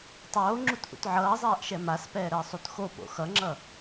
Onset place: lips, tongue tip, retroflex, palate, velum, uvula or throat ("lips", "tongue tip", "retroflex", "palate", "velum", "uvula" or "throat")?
tongue tip